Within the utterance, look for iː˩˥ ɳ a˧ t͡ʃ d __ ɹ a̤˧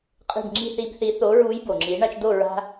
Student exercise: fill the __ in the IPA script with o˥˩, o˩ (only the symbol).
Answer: o˥˩